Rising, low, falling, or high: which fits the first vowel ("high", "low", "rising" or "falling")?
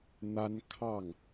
high